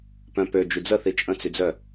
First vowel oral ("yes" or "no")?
no